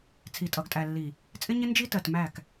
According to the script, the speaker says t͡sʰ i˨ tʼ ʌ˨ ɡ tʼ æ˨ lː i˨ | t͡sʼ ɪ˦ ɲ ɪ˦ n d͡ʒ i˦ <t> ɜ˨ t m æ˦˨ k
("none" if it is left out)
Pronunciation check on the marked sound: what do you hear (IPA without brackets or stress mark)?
t